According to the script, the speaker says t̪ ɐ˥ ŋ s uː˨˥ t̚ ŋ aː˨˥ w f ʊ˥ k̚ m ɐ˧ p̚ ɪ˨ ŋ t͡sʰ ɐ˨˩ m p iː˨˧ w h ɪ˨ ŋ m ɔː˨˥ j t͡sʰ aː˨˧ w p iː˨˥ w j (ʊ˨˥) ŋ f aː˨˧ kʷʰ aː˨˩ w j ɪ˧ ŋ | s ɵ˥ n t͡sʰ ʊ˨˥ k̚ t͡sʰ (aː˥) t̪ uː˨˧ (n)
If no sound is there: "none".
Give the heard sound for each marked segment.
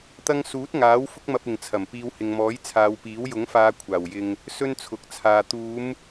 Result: ʊ˨˥, aː˧, m

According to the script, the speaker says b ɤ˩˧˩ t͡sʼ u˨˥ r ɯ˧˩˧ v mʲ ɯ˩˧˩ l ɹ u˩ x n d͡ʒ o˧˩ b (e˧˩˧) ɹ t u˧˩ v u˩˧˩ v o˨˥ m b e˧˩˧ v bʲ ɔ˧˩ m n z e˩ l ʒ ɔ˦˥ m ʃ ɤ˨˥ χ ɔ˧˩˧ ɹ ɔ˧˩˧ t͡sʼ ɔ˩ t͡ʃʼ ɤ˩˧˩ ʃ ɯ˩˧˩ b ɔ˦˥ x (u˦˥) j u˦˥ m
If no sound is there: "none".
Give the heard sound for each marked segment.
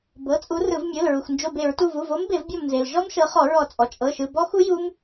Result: e˧˩˧, u˦˥

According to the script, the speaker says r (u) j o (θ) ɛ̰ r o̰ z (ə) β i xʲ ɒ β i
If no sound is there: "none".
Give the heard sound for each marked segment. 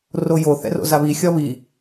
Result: o, θ, a

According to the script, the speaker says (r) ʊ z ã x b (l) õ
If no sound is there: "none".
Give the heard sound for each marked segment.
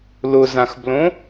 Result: l, l

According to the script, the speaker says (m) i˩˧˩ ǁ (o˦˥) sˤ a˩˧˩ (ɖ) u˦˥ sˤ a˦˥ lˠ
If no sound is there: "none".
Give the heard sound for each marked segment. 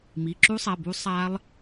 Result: m, u˦˥, b

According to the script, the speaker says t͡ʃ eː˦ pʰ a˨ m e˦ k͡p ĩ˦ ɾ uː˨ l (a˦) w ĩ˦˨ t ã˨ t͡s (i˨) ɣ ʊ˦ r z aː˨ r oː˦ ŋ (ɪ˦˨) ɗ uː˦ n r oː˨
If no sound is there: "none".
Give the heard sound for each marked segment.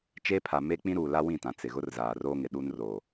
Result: a˦, ɪ˨, ɪ˨

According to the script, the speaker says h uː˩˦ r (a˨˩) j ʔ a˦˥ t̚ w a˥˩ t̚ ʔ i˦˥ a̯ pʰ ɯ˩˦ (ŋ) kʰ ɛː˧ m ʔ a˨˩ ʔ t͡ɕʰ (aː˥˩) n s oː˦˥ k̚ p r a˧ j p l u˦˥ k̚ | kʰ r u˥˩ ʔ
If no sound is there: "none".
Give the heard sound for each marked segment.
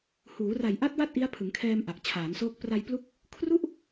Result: a˨˩, ŋ, aː˩˦

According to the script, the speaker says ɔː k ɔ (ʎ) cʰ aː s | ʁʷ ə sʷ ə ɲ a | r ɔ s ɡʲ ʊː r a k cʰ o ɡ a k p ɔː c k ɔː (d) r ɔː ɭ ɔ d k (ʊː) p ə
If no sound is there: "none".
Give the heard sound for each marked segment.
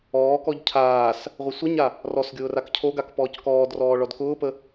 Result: ʎ, d, ʊː

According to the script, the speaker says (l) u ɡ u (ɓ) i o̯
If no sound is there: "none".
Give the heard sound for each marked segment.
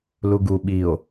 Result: l, ɓ

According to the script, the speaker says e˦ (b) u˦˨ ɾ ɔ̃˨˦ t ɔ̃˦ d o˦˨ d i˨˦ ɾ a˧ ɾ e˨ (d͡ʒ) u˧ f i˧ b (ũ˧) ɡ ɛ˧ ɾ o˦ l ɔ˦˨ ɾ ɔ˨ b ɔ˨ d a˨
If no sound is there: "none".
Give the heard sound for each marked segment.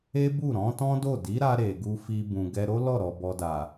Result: b, ɡ, ũ˨

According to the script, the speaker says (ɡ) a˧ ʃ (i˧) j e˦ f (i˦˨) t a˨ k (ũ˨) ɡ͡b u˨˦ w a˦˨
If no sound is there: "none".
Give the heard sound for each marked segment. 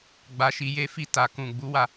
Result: ɡ͡b, i˧, i˦˨, ũ˨

